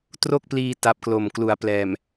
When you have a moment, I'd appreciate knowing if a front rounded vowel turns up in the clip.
no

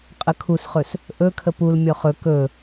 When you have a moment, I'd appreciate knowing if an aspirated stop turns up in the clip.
yes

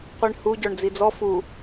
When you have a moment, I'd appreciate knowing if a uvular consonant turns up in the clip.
yes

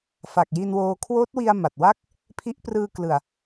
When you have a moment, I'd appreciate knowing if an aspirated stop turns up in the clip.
yes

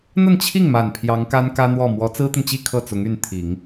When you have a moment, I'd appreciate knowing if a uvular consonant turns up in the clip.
no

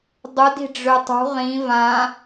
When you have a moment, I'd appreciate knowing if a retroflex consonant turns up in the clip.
yes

